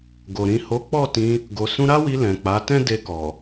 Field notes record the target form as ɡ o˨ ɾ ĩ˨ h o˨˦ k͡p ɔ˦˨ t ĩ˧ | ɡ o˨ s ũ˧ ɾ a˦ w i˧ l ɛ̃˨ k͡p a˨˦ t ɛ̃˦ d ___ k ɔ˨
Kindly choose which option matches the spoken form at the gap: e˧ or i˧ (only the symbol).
e˧